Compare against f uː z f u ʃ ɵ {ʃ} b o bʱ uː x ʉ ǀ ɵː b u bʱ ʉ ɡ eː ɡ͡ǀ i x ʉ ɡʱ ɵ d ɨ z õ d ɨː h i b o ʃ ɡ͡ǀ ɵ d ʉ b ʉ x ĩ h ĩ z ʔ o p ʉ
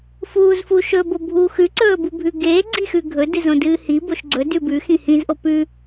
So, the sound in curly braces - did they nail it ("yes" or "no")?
no